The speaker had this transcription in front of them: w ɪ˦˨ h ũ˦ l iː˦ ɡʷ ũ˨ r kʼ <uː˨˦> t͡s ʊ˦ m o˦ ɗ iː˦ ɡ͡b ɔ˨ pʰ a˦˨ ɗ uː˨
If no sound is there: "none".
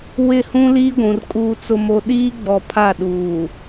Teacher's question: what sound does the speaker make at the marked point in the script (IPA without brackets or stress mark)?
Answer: uː˦